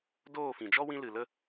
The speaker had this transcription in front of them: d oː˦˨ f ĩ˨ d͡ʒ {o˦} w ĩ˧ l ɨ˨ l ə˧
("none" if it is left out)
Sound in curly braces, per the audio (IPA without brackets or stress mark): ɔ˦